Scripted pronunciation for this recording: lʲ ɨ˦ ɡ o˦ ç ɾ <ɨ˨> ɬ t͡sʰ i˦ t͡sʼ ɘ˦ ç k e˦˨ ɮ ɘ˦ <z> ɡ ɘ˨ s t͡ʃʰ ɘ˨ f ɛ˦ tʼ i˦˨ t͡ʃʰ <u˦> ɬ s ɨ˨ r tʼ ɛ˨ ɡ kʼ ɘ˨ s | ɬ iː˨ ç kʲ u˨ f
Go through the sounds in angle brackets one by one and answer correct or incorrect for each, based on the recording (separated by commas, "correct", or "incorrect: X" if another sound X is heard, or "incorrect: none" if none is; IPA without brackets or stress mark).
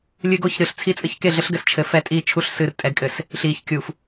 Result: correct, incorrect: ɬ, correct